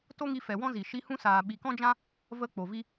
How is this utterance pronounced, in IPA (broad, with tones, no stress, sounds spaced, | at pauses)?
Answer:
t o˦ ŋ i˧ f ɛ˨ w ɔ̃˦ z i˨ ʃ i˧ h ũ˦ s aː˨ ɓ i˨ k ɔ̃˦ d͡ʒ ã˦ | v ə˦ k͡p o˨ v i˦